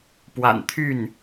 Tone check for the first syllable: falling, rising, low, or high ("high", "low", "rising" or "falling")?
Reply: low